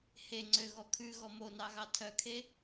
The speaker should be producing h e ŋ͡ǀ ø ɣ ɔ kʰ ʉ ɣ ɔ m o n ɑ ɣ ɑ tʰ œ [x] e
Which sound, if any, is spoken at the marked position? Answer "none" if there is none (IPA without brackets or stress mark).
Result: kʰ